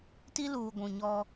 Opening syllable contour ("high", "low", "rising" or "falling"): high